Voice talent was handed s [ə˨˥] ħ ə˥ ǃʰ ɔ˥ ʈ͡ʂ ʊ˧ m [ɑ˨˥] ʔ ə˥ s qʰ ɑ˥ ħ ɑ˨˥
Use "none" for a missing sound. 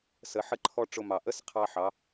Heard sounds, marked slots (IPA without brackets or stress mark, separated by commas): ə˨˥, ɑ˨˩